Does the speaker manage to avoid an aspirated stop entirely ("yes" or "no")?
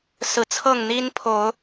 no